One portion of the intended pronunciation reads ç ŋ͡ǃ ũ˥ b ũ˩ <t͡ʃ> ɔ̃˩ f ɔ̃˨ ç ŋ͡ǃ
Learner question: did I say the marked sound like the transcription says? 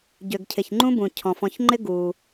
no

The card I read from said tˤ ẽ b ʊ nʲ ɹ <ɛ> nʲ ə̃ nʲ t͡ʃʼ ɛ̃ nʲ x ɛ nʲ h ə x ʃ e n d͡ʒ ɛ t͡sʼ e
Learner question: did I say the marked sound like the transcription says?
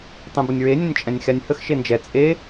no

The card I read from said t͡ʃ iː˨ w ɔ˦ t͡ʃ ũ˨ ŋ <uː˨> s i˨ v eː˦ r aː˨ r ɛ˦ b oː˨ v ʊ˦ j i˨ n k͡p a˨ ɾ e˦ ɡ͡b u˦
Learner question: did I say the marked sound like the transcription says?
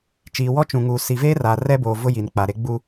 yes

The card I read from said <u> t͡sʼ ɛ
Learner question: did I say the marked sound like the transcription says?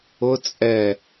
no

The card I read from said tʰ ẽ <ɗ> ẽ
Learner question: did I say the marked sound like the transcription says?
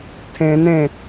no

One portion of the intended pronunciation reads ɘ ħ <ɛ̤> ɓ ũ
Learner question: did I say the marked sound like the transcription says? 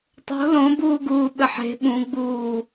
no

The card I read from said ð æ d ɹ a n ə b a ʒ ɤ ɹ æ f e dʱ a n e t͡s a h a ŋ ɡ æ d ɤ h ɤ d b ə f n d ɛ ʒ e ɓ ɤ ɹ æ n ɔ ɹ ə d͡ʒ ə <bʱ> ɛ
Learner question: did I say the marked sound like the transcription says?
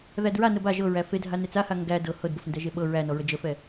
no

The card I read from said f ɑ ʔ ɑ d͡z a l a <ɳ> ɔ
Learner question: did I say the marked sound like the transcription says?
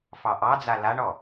yes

